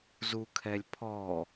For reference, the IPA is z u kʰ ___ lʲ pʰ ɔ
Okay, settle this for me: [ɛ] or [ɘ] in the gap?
ɛ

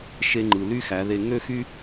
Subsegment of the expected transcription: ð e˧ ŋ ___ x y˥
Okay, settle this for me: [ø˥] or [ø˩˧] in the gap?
ø˥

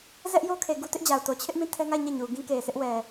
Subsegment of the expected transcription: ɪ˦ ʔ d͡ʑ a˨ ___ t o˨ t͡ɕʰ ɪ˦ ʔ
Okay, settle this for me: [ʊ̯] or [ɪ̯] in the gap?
ʊ̯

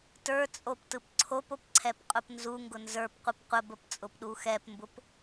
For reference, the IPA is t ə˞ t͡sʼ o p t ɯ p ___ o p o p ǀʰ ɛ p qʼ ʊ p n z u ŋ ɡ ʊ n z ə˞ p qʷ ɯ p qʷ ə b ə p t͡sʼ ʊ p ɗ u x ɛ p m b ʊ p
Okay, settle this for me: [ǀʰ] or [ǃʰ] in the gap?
ǀʰ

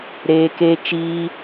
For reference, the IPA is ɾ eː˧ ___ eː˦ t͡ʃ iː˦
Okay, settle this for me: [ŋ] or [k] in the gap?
k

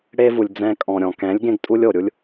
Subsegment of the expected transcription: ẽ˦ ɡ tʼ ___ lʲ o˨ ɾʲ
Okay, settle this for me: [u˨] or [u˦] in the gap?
u˦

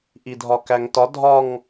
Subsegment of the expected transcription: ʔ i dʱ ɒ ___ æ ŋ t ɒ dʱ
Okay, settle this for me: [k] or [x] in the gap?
k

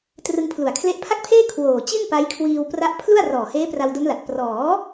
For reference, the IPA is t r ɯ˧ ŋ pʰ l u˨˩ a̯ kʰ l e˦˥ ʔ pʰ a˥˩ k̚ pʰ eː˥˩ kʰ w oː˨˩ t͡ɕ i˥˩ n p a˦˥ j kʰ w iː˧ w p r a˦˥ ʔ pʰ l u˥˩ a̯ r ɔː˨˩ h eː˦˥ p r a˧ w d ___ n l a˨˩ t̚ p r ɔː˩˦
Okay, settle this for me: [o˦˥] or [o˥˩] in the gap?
o˦˥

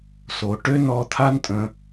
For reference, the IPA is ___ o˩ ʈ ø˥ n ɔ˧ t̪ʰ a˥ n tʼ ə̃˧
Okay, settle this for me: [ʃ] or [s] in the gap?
s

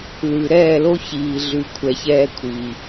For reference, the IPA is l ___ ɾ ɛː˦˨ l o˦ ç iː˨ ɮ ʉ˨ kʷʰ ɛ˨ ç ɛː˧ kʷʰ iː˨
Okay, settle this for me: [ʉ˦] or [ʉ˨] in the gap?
ʉ˨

